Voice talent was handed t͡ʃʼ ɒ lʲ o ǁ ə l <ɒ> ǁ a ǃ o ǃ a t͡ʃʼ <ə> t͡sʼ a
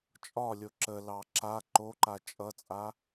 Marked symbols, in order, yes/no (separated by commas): no, no